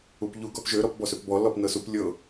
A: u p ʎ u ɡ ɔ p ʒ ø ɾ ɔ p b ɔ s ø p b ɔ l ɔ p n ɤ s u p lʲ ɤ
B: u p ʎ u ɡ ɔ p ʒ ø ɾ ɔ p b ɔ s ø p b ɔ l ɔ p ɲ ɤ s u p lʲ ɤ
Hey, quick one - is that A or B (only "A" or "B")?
A